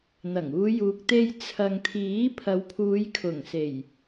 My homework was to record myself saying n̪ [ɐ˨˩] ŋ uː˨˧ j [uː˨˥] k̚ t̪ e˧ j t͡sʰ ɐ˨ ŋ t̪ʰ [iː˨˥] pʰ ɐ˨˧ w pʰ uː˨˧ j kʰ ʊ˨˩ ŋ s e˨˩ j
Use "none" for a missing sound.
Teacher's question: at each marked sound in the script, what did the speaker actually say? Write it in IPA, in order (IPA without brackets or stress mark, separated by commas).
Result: ɐ˨˩, uː˨, iː˨˥